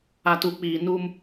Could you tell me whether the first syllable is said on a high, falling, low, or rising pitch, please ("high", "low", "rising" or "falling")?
low